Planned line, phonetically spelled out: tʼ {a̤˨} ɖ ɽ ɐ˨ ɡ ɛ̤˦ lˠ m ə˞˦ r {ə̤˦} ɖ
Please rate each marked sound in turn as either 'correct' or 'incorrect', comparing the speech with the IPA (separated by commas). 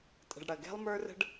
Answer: incorrect, correct